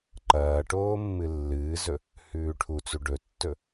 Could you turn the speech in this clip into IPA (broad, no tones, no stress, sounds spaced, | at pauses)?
ǃ ɐː ʈ oː mː ɨ lː ɨː z ɵ | h ʉː ʈʰ u t͡s u ɖ ɵ tː ɵ